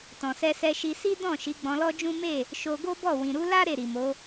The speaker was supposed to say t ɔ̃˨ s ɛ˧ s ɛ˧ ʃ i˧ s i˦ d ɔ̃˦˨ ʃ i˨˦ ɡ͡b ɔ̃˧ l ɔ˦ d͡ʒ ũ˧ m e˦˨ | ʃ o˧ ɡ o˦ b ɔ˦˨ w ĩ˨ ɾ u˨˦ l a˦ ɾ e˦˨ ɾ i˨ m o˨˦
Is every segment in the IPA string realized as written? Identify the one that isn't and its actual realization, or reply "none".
ũ˧ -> ũ˦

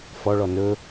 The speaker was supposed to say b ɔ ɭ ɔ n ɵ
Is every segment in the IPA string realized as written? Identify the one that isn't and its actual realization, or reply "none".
b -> f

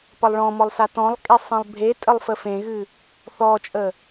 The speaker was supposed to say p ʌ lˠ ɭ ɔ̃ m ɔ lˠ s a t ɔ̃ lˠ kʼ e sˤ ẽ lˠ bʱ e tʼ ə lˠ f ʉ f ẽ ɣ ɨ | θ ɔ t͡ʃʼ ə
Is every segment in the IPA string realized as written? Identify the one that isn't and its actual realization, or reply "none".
ʉ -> ə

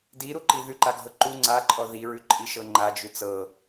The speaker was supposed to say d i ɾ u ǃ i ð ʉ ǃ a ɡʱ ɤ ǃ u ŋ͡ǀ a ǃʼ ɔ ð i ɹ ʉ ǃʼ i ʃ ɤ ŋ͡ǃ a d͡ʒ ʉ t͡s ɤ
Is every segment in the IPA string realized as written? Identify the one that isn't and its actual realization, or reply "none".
none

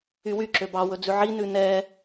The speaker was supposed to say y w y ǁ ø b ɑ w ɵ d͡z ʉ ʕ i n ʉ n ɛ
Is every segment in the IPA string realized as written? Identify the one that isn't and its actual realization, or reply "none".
none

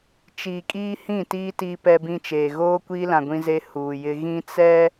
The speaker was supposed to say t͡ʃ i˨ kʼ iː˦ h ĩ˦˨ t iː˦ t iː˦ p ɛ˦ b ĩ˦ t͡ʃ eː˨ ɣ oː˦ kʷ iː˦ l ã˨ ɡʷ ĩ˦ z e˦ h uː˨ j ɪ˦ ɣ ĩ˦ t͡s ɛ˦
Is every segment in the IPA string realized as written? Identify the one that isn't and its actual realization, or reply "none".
none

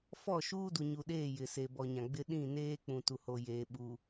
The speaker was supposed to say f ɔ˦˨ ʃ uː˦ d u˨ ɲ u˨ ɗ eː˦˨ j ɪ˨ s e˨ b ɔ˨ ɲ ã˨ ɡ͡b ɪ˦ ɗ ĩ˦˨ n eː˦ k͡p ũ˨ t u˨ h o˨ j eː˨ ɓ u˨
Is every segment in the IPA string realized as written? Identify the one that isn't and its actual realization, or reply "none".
none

